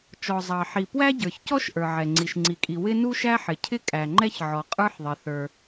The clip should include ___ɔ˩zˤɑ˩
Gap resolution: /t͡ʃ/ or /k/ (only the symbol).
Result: t͡ʃ